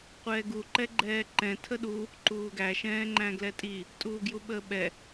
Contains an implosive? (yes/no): yes